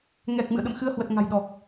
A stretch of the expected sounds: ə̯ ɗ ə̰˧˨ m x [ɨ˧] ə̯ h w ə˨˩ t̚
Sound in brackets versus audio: correct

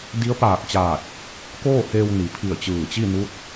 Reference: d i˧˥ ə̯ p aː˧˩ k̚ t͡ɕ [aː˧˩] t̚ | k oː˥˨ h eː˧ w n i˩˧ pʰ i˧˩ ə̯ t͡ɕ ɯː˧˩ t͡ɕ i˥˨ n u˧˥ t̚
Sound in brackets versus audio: correct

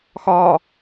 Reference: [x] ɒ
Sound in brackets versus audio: correct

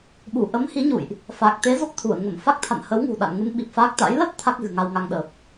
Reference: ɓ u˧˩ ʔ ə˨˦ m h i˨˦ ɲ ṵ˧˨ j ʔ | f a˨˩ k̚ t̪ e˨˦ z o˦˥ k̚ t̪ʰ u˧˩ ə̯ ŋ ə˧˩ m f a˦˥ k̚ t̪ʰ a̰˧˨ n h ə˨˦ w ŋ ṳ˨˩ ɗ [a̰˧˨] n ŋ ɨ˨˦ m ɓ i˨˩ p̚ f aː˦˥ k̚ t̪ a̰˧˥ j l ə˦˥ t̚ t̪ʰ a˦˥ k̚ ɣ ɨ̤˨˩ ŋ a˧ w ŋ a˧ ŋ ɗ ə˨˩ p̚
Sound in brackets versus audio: correct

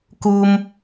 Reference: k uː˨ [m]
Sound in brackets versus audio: correct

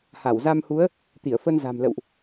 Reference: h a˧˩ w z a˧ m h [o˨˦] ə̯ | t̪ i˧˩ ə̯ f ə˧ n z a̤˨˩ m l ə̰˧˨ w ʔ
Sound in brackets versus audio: incorrect: u˨˦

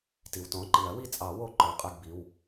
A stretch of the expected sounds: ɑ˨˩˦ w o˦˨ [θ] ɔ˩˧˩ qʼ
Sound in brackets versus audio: incorrect: ǃ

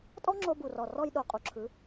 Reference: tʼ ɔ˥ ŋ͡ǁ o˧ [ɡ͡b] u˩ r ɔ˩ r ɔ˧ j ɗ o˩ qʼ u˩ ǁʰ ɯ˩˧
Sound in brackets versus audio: incorrect: b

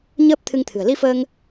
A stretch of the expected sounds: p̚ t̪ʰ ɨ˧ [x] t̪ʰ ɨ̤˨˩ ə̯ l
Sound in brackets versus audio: incorrect: ŋ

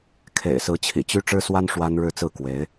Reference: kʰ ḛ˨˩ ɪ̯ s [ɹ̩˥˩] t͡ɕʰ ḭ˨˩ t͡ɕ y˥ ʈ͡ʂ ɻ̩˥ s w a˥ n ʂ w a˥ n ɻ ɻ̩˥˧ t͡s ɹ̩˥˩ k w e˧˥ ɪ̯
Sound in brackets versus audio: incorrect: ɹ̩˧˥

